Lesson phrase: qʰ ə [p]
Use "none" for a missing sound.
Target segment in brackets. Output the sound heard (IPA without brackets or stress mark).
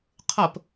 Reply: p